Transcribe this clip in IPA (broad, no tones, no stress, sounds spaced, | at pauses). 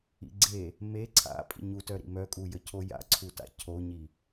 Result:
ḭ ɡ͡ǀ e | m e ǀʰ a̰ pʼ ḭ ɲ u t œ ɾ ḭ m œ kʼ u j ə cʰ o j a̰ ǀʰ u t a̰ cʰ o ɲ i